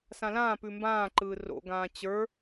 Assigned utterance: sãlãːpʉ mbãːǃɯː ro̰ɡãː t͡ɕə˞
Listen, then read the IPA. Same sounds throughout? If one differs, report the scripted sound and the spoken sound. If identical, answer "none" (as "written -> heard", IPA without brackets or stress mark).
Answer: none